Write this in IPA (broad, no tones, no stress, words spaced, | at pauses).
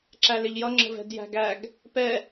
ǁælɪʎjʌ ŋ͡ǁə̤vɛ̤djæ̤ɡæɡ | pɛ